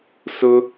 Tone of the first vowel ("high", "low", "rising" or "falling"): high